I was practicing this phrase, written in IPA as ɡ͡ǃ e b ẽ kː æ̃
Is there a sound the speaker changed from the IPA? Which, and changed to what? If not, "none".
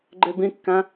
ẽ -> ĩ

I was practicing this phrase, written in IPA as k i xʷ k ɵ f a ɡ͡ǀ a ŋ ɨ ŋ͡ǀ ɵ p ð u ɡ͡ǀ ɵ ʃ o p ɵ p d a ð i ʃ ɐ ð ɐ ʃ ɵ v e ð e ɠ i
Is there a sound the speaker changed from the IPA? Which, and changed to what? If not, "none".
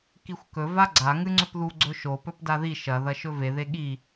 f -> v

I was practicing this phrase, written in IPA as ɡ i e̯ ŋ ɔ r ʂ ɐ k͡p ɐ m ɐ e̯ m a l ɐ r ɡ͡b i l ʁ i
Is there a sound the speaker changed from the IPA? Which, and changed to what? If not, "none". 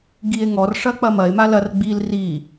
ʁ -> r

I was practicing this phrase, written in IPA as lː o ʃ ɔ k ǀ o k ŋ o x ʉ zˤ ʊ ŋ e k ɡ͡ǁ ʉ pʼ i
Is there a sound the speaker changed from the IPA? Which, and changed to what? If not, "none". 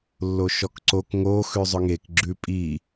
none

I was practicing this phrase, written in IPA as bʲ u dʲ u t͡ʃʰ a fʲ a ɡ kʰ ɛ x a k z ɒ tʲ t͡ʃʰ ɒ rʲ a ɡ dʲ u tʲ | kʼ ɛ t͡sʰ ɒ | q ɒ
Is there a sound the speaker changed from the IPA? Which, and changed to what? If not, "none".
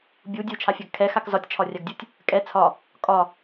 q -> kʼ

